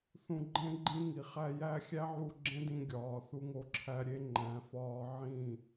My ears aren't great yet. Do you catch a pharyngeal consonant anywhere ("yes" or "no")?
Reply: yes